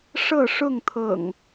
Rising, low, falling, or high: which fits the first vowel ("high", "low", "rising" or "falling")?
falling